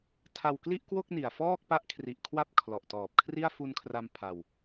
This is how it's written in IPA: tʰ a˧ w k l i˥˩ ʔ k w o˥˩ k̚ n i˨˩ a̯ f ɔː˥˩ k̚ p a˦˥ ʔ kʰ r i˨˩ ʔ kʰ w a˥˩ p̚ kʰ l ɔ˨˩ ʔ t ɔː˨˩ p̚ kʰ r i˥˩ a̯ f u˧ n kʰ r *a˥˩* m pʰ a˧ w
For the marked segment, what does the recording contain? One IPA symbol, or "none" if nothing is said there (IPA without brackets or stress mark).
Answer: a˧